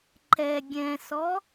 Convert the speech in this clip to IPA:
ǃ ɛ ɡʲ ɛ̃ s ɔ

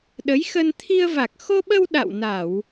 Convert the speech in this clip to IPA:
ɗ ə˨˦ j x ə˧ n t̪ʰ i˧ ə̯ v a˨˩ k̚ x o˧ ɓ ə˧ w ɗ a̰˧˨ w n a˧˩˨ w

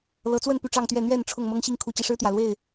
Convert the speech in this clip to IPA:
l ɤ˨˦ t͡s w ə˥˨ n p y˥˨ ʈ͡ʂ ɑ˥˨ ŋ t̪ ɥ ɛ˥˨ n̪ ɥ ɛ˥˨ n ʈ͡ʂʰ ʊ˥˨ ŋ m ɤ˦ ŋ ɕ i˥˨ ŋ kʰ u˨˦ t͡ɕ i˨˩ ʂ ɻ̩˦ t̪ j ä˨˩ l w e˥˨ ɪ̯

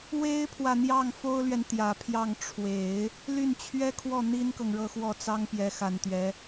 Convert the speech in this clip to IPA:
w e˥ ɪ̯ pʰ w ä˨ n̪ j ɑ˥˩ ŋ f o˥ ʊ̯ l ɥ ɛ˨ n t̪ j ä˨˩ pʰ j ɑ˥˩ ŋ ʈ͡ʂʰ w e˨˩˦ ɪ̯ | l y˥˩ n t͡ɕʰ ɥ ɛ˥ kʰ w ɔ˥˩ n̪ i˥ n k ɤ˨ ŋ ɻ ɤ˥˧ x w ɔ˥˩ t͡s ɑ˥ ŋ p j ɛ˧˥ x a˨˩ n t̪ ɥ ɛ˧˥

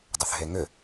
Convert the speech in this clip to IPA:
dˤ ʏ θ ɦ e ŋ ʏ

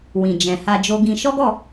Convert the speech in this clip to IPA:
w ĩ˨ d͡ʒ ɛ̃˨ h a˧ d͡ʒ o˧ ɡ ĩ˧ ʃ ɔ˦ ɡ ɔ˦˨

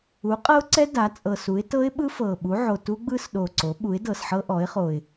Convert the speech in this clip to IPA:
u˩˥ qʼ ɤ˦˥ ʊ̯ ǀ ɛ˦˥ d a˩˥ t͡sʼ ɤ˨˩ s u˩˥ ɪ̯ t ɤ˦˥ ɪ̯ ɓ ɯ˦˥ f ɤ˨˩ ɓ u˩˥ ʕ o˨˩ t u˦˥ ɡ͡b ɯ˦˥ s ɗ o˨˩ ǀ o˩˥ ɓ u˩˥ ɪ̯ d ɤ˨˩ s ħ ɤ˦˥ ʔ ɔ˩˥ ɪ̯ χ o˨˩ ɪ̯

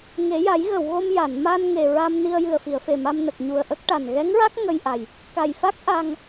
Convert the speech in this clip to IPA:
ŋ e˨˩˦ j a˨˩˦ j ɣ ə˨˩˨ w ɣ o˧ m j a˨˩˨ n m a˧ n ŋ e˨˩ ɹ a˧ m n i˧ ə̯ j ɨ˨˩ ə̯ f i˨˩˨ ə̯ f e˨˩ m a˧ m n ə˨˩ k̚ ɲ u˨˩ ə̯ ʔ ə˦˥ k̚ ʈ a˨˩ n ɣ ɛ˧˥ ŋ ɹ a˦˥ k̚ ŋ ə˧ j ʔ a˨˩ j | k a˨˩ j f a˦˥ k̚ ʔ a˧ ŋ

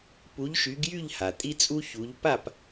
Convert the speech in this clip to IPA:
p u˨˥ ʎ ʃ y˨˥ ɡ j y˥˨ ʎ h a˩ tʼ i˦ t͡sʼ u˦ ç u˨˥ ʎ p a˥˨ p

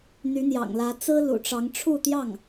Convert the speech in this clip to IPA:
n̪ y˧˥ n̪ j ɑ̰˨˩ ŋ l ä˧˥ t͡s ɹ̩˥ l ṵ˨˩ ʈ͡ʂ ɑ˧˥ ŋ ʈ͡ʂʰ u˥˧ t̪ j ɑ˥˩ ŋ

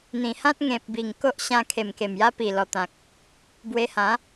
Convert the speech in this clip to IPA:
n̪ ĩ˨˩ h ã˦ t̚ ŋ ẽ˨ p̚ b i˨˩ ŋ k o˦ ʔ ɕ ã˧ kʰ e˨˩ m k e˨˩ m j a˧ p i˨˩ l ɔ˨˩ t̪ ã˨ k̚ | b w e˧ h ã˨˦

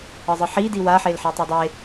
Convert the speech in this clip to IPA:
ɤ zˤ ɯ ħ i d i w a ħ e l ħ e tˤ a dˤ e

